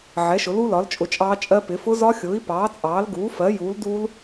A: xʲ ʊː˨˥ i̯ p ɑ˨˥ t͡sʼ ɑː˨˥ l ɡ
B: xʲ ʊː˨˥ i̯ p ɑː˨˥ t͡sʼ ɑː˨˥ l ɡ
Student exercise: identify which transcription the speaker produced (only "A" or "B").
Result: B